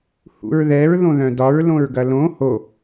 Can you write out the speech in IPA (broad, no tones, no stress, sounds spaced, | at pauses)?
h ṵ ɹ ð ɛ ɹ ð õ ð œ̃ d ɒ ɹ l õ ɹ ɡ ɐ l õ h o